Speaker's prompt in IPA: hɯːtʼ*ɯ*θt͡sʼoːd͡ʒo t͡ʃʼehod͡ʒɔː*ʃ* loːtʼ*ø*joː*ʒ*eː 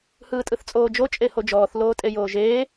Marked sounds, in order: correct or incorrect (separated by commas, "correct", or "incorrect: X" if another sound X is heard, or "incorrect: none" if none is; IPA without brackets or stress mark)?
correct, incorrect: θ, incorrect: e, correct